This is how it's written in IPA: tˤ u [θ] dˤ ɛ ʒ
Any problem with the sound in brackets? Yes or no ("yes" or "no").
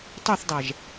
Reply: no